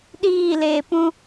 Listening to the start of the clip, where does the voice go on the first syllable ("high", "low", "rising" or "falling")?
falling